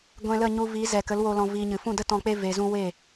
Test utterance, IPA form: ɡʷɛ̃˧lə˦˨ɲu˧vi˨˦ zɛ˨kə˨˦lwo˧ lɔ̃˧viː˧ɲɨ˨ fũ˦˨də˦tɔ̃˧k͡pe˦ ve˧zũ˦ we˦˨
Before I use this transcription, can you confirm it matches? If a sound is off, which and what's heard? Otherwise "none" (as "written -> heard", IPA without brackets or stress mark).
none